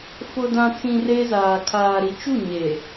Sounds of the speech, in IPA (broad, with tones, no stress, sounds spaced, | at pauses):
f ʊ˨ d ã˨ t͡s ĩ˨ r e˦ z aː˨ kʰ aː˨ ɾ i˨ t͡ʃ u˦˨ ɲ e˨